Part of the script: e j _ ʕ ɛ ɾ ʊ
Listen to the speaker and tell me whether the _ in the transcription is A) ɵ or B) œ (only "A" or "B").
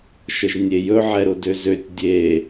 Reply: A